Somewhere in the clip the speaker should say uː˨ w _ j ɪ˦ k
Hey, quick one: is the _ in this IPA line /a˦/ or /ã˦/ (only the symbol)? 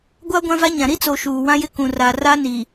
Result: ã˦